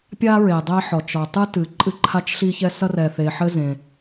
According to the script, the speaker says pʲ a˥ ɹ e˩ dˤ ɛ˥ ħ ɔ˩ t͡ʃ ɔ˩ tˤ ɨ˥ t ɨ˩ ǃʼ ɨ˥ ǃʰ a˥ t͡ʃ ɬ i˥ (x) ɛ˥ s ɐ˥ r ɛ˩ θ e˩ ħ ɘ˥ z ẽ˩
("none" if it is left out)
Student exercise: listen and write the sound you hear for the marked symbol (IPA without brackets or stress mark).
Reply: ç